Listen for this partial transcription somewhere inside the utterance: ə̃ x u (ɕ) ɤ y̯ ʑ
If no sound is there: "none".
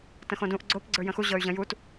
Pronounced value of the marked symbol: ʑ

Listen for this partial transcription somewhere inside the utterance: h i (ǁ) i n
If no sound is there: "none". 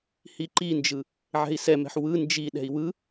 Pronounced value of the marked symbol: ǃ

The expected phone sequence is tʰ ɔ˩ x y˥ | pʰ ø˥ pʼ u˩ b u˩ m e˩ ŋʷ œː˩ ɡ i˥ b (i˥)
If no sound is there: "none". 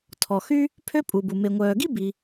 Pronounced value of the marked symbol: i˩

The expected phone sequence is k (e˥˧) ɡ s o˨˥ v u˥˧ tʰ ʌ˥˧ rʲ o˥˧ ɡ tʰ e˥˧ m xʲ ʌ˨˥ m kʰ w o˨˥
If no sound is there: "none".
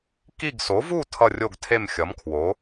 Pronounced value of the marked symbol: i˥˧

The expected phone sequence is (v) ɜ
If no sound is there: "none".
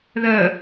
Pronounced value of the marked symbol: ð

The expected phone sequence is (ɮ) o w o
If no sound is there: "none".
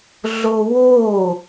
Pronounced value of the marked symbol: ɮ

